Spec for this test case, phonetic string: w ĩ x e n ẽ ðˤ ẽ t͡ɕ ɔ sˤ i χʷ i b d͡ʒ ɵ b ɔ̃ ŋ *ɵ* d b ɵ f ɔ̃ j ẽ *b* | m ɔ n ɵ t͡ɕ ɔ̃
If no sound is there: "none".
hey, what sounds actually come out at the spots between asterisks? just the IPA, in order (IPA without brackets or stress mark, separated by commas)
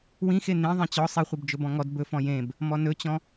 ɔ, b